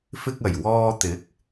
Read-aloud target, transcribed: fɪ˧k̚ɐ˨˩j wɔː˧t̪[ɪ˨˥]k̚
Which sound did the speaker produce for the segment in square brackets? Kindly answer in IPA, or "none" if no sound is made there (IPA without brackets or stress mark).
ɪ˨˥